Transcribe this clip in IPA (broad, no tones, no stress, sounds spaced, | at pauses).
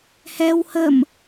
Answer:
h ɛ w h ə m